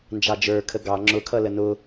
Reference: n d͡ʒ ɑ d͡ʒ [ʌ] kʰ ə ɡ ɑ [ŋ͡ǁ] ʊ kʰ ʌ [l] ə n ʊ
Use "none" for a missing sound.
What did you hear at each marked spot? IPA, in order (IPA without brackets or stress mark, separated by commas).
ə˞, ŋ͡ǁ, l